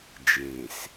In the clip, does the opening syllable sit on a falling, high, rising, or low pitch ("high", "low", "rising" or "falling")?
low